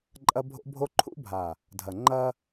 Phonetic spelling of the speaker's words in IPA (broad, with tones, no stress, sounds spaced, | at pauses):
ǃʼ ɐ˦ bʱ o̰˦ bʱ o˦ ǃʰ ṵ˦ bʱ a˨ | dʱ ɐ˨ ŋ͡ǃ ɐ˦